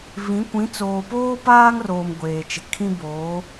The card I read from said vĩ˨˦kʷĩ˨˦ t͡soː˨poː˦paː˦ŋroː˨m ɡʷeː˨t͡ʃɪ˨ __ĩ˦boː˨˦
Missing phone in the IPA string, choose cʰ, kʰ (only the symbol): kʰ